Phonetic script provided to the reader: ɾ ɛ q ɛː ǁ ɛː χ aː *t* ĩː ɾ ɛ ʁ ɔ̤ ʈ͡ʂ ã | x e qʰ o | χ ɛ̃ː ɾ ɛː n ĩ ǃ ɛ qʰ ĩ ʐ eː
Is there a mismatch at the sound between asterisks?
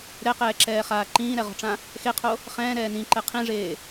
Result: yes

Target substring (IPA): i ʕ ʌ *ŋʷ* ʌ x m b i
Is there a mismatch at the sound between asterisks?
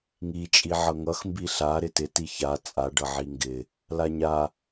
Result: yes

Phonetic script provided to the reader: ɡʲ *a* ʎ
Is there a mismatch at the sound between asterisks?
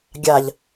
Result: no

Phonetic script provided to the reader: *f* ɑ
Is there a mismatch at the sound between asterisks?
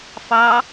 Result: no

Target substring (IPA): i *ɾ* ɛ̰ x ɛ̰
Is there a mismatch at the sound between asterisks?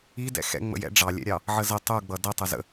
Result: yes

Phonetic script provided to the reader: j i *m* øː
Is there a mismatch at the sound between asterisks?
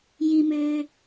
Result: no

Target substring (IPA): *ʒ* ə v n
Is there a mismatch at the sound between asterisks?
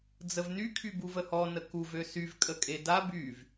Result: yes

